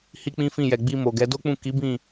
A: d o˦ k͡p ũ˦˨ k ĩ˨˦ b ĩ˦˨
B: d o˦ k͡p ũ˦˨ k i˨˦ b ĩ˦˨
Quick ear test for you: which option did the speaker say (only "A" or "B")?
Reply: B